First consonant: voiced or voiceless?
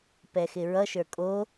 voiceless